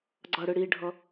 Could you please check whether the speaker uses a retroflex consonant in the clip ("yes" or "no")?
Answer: yes